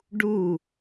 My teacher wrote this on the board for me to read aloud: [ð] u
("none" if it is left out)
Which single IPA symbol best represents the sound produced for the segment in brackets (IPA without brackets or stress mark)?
ɖ